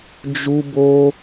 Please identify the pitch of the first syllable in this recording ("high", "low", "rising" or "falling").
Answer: high